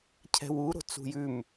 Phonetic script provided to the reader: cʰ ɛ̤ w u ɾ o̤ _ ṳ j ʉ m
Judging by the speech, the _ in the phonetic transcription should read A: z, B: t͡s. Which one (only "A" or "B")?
B